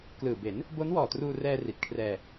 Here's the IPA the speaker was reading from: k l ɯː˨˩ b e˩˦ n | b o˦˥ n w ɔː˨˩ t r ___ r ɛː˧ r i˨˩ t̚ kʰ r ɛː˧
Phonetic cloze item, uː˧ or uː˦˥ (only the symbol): uː˧